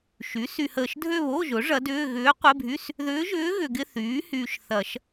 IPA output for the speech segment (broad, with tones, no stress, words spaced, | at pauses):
ʃy˩˥sy˨həː˨ʃ dʱø˥˧βo˧˥˧ʒʊ˩˥ ʐɐ˧˥dʏː˧˥˧ ɣʏː˧˥qʷɪ˧˥˧ bʱy˧˥˧s | ðʏː˧˥ʒʏː˧˥ ɣʏ˨ɡɪ˧˥˧θyː˩˥ hyː˨ʃθɐ˨˩˦ʃ